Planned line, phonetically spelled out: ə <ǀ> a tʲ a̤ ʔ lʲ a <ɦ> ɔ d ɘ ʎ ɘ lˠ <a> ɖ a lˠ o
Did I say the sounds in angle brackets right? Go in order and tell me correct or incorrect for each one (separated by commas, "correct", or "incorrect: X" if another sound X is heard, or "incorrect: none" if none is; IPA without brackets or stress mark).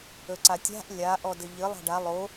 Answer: correct, incorrect: ʔ, incorrect: a̤